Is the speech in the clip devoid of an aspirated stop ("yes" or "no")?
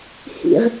yes